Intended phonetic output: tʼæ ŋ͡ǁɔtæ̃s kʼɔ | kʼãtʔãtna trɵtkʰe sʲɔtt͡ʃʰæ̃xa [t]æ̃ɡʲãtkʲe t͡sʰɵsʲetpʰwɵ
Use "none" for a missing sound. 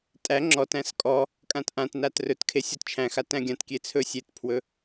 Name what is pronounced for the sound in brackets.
t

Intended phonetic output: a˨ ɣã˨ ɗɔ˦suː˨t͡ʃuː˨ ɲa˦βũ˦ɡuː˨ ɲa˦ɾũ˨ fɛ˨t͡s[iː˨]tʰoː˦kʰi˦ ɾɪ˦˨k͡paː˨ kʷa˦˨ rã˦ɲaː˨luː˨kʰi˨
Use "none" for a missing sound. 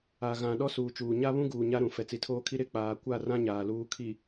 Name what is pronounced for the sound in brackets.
i˨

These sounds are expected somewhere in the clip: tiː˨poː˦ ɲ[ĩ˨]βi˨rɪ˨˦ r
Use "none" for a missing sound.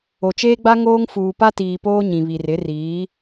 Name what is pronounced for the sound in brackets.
ĩ˨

